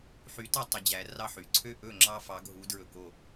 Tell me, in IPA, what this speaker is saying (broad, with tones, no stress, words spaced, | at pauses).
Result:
ħy˨˦ tɑ˦ tˤɵ˨˦d͡ʑæ˨˦ rɑ˦ħy˩ ǀʰø˥˨ʔɵ˥˨ŋ͡ǁɑ˦ fɑ˨˦ɡʱu˨˦dɹɵ˧˩ ko˥˨